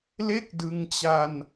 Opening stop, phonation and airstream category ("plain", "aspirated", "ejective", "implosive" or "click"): plain